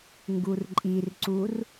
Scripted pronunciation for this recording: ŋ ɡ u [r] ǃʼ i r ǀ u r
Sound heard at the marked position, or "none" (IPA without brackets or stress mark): r